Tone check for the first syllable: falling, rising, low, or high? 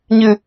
low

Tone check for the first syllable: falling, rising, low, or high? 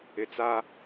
low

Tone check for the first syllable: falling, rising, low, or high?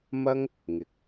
high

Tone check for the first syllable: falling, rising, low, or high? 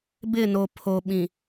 falling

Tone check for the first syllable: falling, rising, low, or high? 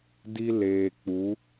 high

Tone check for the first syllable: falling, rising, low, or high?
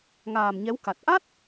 low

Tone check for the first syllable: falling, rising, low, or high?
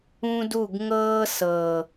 high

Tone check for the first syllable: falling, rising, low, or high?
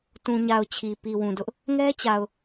low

